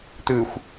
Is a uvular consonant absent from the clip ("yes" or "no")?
yes